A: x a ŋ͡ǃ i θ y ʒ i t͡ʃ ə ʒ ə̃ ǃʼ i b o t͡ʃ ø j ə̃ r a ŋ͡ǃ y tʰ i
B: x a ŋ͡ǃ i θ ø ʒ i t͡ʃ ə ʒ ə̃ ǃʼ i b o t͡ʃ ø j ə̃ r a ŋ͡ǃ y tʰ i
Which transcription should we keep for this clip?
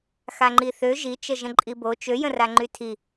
B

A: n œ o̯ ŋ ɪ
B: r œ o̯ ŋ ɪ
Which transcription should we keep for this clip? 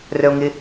B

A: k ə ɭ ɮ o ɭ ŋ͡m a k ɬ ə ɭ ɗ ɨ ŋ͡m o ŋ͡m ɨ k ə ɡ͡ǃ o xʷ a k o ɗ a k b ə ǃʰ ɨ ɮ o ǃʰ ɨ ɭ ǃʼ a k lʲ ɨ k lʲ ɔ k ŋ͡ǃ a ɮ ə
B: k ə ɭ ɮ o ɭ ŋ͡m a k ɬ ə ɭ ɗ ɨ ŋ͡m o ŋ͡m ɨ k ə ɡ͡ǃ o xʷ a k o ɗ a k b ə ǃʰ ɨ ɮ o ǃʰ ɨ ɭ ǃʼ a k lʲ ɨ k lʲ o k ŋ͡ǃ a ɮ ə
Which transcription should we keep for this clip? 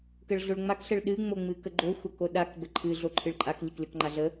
A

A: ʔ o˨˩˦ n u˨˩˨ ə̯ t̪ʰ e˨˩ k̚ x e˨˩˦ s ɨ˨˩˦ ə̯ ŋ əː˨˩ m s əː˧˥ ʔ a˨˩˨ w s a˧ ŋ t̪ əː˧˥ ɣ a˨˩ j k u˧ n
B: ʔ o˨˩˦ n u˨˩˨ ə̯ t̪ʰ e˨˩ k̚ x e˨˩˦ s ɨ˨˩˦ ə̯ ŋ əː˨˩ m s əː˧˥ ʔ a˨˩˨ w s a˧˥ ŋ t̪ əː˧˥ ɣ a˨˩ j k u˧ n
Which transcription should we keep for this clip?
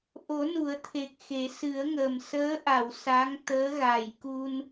B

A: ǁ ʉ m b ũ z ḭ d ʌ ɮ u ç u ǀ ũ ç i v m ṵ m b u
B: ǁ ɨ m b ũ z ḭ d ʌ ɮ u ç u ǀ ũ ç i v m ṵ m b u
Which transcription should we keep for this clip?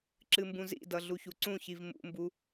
B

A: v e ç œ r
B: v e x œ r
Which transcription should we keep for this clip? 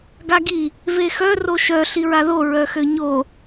B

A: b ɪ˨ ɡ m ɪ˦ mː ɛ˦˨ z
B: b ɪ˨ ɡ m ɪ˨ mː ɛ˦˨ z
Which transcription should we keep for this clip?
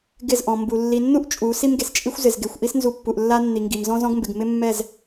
A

